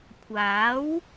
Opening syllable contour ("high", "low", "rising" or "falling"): rising